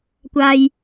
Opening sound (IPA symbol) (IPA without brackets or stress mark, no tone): kʷ